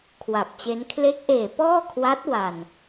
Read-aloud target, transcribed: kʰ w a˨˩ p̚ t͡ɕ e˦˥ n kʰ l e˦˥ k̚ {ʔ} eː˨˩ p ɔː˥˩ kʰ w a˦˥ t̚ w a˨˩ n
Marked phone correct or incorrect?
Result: correct